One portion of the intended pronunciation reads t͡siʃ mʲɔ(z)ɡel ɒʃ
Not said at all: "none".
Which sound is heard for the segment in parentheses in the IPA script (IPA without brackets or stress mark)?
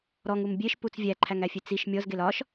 z